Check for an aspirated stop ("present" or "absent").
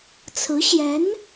present